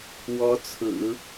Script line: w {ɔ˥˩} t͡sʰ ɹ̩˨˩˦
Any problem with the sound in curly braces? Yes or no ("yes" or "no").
yes